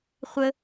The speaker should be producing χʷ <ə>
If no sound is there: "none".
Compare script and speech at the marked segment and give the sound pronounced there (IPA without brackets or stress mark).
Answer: ə